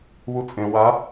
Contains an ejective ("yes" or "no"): yes